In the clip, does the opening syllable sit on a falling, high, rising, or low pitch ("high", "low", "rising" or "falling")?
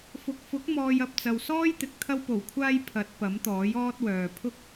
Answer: low